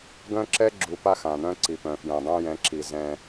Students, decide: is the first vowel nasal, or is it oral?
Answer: nasal